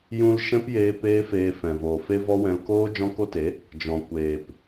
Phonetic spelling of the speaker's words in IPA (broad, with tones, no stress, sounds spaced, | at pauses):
j ũ˧ l ʃ ɛ̃˦ p j eː˧ p eː˦ f eː˧ f ɛ̃˨ v oː˨ f e˦ v ɔ˦ w ɛ̃˧ l k oː˦ d͡ʒ ɔ̃˦ k o˦ t e˨˦ | d͡ʒ ɔ̃˨ kʷ eː˨ p